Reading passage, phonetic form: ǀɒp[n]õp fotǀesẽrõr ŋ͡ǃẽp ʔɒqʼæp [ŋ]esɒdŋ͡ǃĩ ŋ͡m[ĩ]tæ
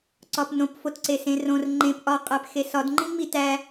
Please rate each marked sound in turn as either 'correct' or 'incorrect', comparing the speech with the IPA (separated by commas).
correct, incorrect, incorrect